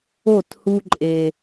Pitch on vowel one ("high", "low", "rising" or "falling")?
falling